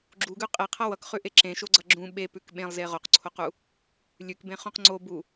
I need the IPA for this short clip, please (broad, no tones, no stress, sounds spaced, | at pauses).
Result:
ɡ͡ǁ u ɡ ʉ qʼ e qʰ ʌ w ʌ k χ ʉ ʔ e ǁ ẽ ʃ o ɡ͡ǀ ʌ ɡ͡ǁ ũ ɓ e p ʉ k ɓ ẽ lˠ z e ʁ o q ǀʰ o q u | lʲ ʉ k b ẽ χ ũ q ŋ͡ǀ o b u